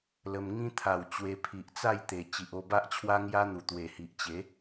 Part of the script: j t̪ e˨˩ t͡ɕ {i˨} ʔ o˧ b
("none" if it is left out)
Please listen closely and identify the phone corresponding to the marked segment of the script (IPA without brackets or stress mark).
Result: i˨